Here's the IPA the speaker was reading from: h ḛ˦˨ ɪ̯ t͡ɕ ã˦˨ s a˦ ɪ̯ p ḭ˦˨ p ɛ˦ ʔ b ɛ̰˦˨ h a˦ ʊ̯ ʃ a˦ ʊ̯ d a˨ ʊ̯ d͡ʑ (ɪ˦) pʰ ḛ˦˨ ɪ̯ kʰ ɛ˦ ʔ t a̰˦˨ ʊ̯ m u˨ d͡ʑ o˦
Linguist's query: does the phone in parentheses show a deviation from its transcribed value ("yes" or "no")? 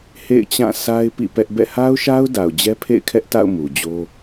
yes